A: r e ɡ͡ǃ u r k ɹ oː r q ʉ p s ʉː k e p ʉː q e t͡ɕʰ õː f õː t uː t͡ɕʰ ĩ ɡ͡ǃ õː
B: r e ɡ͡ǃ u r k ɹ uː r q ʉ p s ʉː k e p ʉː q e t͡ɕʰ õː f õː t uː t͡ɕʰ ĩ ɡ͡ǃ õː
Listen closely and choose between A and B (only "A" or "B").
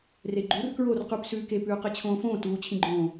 A